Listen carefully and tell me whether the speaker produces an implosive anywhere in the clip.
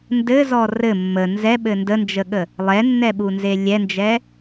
yes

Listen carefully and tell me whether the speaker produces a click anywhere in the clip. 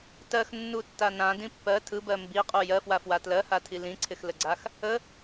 yes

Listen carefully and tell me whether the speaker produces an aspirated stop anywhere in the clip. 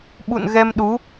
no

